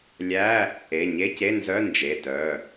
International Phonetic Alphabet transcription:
lʲ æ˧˥˧ | e˩˧˩ ɲ e˧˥˧ c e˧˥˧ n z œ˧˥˧ n d͡ʒ e˩˧˩ t œ˩˧˩

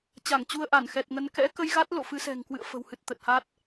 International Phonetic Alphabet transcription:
t͡ɕ a˧˩ ŋ t͡ɕ u˧ ə̯ ʔ a˧˩ n x ɛ˨˩ t̚ ŋ ə˨˦ n k ɛ̰˧˥ k ə˧ j ɣ a˦˥ t̚ l o̰˧˨ f ɨ˨˦ s ɛ̤˨˩ ŋ k w ɨ̰˧˨ ə̯ f ə̤˨˩ w h ɨ˨˩ t̚ t̪ ə˨˩ t̚ h a˦˥ t̚

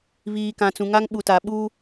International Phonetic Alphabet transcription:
β iː˨ k ã˨ t͡s ũ˨ ŋ a˦ ŋ ɓ u˨ t a˨ ɓ u˦

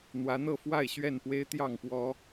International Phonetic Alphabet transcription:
n̪ w ä˨˦ n̪ ɤ˥˨ f w a˥˨ ɪ̯ ɕ ɥ ɛ˥˨ n p w e˦ ɪ̯ t̪ j ɑ˥˨ ŋ p w ɔ˦

